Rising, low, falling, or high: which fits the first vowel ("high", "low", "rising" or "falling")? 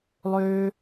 high